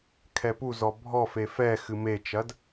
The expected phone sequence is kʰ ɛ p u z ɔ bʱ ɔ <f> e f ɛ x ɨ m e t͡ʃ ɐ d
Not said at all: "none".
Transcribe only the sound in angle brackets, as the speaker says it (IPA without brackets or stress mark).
f